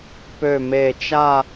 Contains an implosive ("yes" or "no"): no